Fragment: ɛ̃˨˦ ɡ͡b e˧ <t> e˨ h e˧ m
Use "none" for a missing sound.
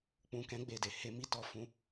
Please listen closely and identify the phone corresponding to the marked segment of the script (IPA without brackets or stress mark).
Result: d